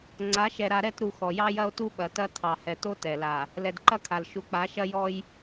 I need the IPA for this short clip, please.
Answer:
ŋ͡ǀ a˨˦ ʃ ɛ˨ ɾ a˨ ɾ ɛ˦˨ t ɾ u˨ x ɔ˨ j ɑ˦ j ɐ˦ o̯ t u˦ ɓ ɐ˨ t ɐ˦ tʰ ɑ˨ h ɛ˨ t o˦ t ɛ˨ l a˨ | l ɛ˨ d ǃ ɐ˦ kʰ a˨ l ʃ u˨ k͡p a˨˦ ʃ ɐ˦ j ɔ˦ j

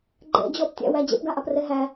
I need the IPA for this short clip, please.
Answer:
ɡ͡ǃ ɛ̰ d͡ʑ ɔ p tʲ æ̰ w æ d͡ʑ ɛ̰ p ɡ a ʔ a p r ɛ ɦ æ

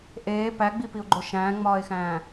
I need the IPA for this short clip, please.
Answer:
ʔ eː p æ ɡ͡b i p i ʊ̯ ɡ͡ǃ o ʃ æ̃ː ŋ͡m ɒː ɪ̯ x æ̃ː

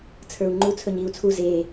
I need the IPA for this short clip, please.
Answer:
t͡sʰ ə˞ u̯ ŋ͡ǃ u t͡sʰ ɵ ɲ iː u̯ t͡sʰ u z eː

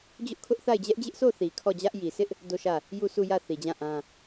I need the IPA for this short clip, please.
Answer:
d͡ʑ ʊ˦ ʔ kʰ ʊ˦ ʔ θ a˦˨ ɪ̯ d͡ʑ ɛ˦ ʔ d͡ʑ ɪ˦ ʔ s o˦˨ θ i˨ kʰ ɔ˦˨ d͡ʑ ä˦ ʔ j i˨ s ɪ˦ ʔ | d o˦˨ ʃ ä˦˨ | j u˦˨ sʰ u˦˨ j ä˦˨ θ i˨ d͡ʑ ã˦˨ ʔ ã˦

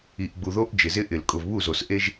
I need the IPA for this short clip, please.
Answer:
i˨ ʔ ɡ͡b u˨ ð o˦ ʔ d͡ʒ ɪ˨ z ɪ˦ ʔ ɪ˨˩˦ l kʼ ʊ˨ v β u˥˩ z o˨ s ʔ e˦ ʒ

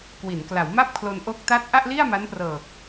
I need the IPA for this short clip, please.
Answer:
k w i˩˦ n k l a˩˦ w m a˥˩ p̚ kʰ l o˧ n ʔ o˦˥ k̚ t a˦˥ t̚ ʔ a˥˩ ʔ l i˥˩ a̯ m a˦˥ n p r ɤː˨˩ k̚

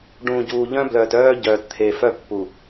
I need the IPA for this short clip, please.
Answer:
ɖ ũː˨ ɟ uː˨ ʎ œ̃˦ b l œː˨ t œː˦ ɟ œː˨ t t̪ʰ e˨ f œ˦ pː u˨

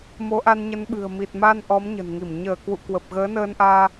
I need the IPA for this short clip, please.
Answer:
m o˨˦ ʔ a˧ n ɲ ə˨˦ n ɓ ɨ̤˨˩ ə̯ m i˨˩ t̚ m a˧ n ʔ ɔ˨˦ m ɲ ə̤˨˩ n ŋ i˧˩ m ɲ əː˧˩ k w ṵ˧˨ k w ə˨˩ p̚ ɣ əː˨˦ n əː˧ n ʔ aː˧

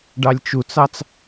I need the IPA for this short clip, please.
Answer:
ɖ ɑ lʲ t͡ʃ u t͡s ɑ t͡s

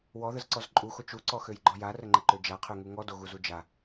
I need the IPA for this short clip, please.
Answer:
w ɔ ð ə z ǀ ɔ z ǃʼ u x o t͡ʃ u ǀ ɔ x ø j ɡ͡ǃ ɔ j a r ə ŋ͡ǃ ə ǃ ø d͡ʒ a qʰ ø ŋ u ŋ ɔ d o ɣ u z u d͡ʒ a

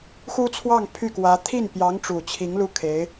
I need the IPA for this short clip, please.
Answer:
x u˥ t͡sʰ w ɑ˥˧ ŋ pʰ y˥˩ k w ä˧˥ t̪ʰ i˥˩ n p j ɑ˧˥ ŋ ʈ͡ʂ u˨˩ t͡ɕʰ i˧˥ ŋ l u˥˩ kʰ e˧˥ ɪ̯

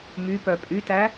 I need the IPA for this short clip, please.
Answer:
m y p œ pʼ y t æ

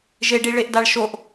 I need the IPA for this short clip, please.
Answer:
ʒ e ɖ i ɭ e ʔ d a ɭ ʃ o ʔ

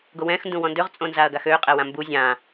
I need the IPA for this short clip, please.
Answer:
ɡ o w ɛ̃ x n d ũ w ɔ̃ n d ø ʁ t͡sʼ õ n z a ɐ̯ ɡ a x ø qʼ ɛ w ã m b u zʲ ã

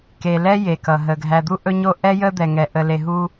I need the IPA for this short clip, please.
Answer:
k e˨ l ɛ˦ j e˨ k ʌ˨ ɦ ə˨ ɡʱ æ˨ d̪ u˦ ʔ ɵ˦ ɲ o˦ ʔ ɛ˦ j ə˦ d̪ ɛ˨ ŋ ɛ˨ ʔ ə˨ l e˨ ɦ u˦

